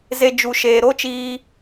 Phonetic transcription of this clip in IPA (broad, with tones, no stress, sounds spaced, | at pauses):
z e˨ d͡ʒ u˨ ʃ eː˨ ɾ o˦ t͡ʃ iː˧